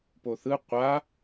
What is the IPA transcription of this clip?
p o θ ɯ qʷ a

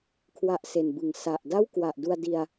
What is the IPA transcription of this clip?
kʰ w a˦˥ ʔ s e˨˩ n b ɯ˨˩ ŋ s a˨˩ ʔ d a˥˩ w k w a˨˩ ʔ d u˧ a̯ d i˧ a̯

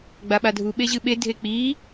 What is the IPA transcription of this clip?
ɡ͡b a ɓ a dʱ u ɓ e ʑ ɨ ɓ e dʱ e k͡p i

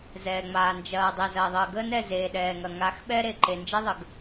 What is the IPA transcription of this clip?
z ɛː˨ ŋ͡m aː˨ n d͡ʒ ɐː˨ dˤ ɛ˨ z ɐː˨ ðˤ əː˨ ɡ əː˦ n ɛ˦˨ z eː˨ ɗ ɛː˨ ŋ ɐ˨ ŋ a˨˦ x ɓ ɛ˦ ɾ e˨ ǃ e˨ n d͡ʒ e˦ ðˤ ə˨ ɡ

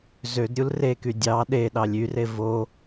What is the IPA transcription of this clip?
z ø d ɾʲ u l r e k y dʲ ɑ ɗ e ɗ ɑ lʲ y r e v o

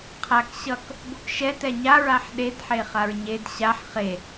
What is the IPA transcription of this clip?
qʰ a k ɕ ʌ k | b o k ʃ ɛ t ɛ ɲ a ɹ a ħ ɗ e d ħ e χ a ɹ ɲ e d ɕ a ħ χ e

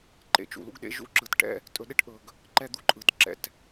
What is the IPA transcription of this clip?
ǃ ḛ˩ t͡ʃ ṵ˩ l ṵ˥ ɡ ɗ ḛ˧ ʒ ṵ˥ ǁ ɯ˩ t ʈ ɛ̰˥ | tʼ ɵ˧ ɗ e˥ ʈ ʔ ɵ˩ ɡ | ǃ ɛ˧ d̪ u˧ ǃʼ ɯ˩ t ǁ ɛ̰˩ t

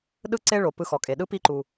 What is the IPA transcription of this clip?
ɗ ɯ˥ ǀ e˥ ɭ o˩ p ɯ˧ x ɔ˩ kʼ e˩ ɗ ɯ˧˥ p i˧ ǃ u˩

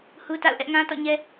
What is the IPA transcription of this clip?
h u˦ t a̰˦˨ ʊ̯ ʔ ɛ˦ ʔ ŋ ã˦ t ɔ̰˦˨ ɲ ɛ˦

